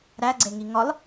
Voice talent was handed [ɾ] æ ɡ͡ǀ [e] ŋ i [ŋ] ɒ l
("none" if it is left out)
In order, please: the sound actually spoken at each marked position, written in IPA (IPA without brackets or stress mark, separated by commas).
ɾ, e, ŋ